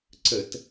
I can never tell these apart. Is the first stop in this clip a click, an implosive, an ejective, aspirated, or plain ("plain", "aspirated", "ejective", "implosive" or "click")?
click